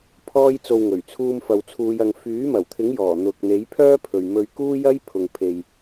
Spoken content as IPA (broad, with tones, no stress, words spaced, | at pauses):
pʰɔː˥jt͡so˧w ŋɵ˨˩ɥt͡sʰuː˧mfɐ˨wt͡sʰuː˨˧j ɐ˨ŋ fyː˨˥mɐ˨˩wt̪ʰɪ˨˥ŋjɔː˨˩ n̪ʊ˨k̚n̪e˨˥j pʰœː˥pʰɵ˨ɥmɵ˧ɥkuː˥ jɐ˥j pʰʊ˨ŋpʰe˨j